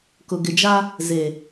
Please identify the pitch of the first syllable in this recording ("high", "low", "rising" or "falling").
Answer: low